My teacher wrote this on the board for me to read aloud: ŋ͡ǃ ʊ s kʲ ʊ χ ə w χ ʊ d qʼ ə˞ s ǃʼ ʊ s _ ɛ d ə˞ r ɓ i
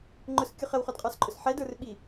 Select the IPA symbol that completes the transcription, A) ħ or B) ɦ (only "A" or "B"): A